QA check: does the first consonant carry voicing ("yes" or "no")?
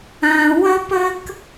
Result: yes